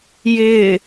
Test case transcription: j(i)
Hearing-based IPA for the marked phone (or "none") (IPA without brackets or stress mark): ɪ